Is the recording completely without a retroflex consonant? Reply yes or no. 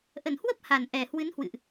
yes